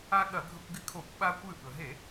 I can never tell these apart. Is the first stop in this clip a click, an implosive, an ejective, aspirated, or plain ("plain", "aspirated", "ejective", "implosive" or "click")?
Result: implosive